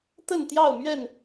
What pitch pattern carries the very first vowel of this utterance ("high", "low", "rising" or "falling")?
falling